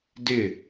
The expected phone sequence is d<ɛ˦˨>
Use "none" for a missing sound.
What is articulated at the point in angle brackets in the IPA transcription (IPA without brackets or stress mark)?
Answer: ɪ˦˨